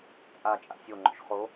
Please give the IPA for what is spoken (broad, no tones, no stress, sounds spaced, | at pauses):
t͡sʼ a t͡ʃʼ a̰ sʲ o ŋ͡ǃ o̰ ʃ χ o